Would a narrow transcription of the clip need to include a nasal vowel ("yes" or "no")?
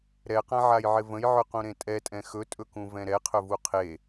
yes